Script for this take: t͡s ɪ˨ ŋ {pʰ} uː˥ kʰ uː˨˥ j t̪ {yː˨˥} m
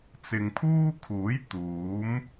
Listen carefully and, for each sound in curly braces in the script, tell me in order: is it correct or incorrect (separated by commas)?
correct, incorrect